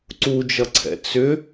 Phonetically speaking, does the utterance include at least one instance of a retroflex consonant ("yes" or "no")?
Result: no